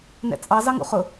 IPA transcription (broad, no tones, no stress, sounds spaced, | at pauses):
n ɛ̰ t͡sʼ ɑ z ɑ ŋ ṵ χ ʊ